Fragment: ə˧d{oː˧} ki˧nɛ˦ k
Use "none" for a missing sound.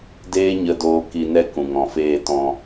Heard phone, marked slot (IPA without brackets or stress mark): oː˧